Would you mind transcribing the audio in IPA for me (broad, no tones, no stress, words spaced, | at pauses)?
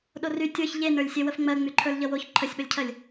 ɗory tʲə˞ç ʎenə˞lʲsʲe wəfŋ͡mɜ ŋ͡myǃʰə˞lʎʌwoç ǃʰəsʲɓəlʲcʰɜlʲ